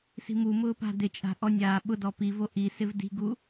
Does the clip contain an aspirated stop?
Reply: no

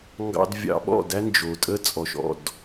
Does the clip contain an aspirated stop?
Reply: no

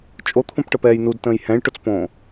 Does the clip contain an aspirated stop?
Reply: yes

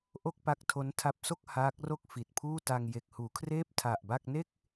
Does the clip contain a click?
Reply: no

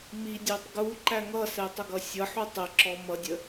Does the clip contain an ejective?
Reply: no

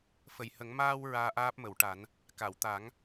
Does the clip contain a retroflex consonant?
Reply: yes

